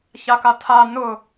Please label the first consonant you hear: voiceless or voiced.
voiceless